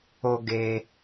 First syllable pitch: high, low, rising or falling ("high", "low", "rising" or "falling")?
high